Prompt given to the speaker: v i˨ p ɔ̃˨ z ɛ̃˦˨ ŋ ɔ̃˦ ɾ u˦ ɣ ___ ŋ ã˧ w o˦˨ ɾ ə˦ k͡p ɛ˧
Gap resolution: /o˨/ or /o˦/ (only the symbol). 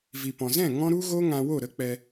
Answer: o˦